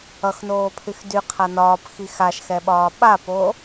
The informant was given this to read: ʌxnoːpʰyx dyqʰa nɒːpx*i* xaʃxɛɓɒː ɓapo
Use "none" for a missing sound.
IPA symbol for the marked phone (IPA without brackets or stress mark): i